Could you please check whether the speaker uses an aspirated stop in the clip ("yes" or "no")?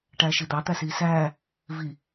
no